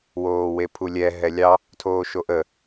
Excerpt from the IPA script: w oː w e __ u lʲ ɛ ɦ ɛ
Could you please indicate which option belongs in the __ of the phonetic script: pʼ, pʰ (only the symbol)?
pʰ